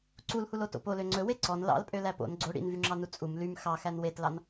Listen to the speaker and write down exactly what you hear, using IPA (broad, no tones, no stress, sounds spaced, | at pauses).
ǀ u l h u l o t o̰ p o l ø ŋ͡ǀ ɵ w e ǀ ɔ n l ɑ̰ l pʼ ø l æ p o̰ n ɡ͡ǀ o ɽ ḭ n v y ŋ͡ǁ ɑ n u t͡sʼ u m l y m x ɑ x æ n w e t l ɑ n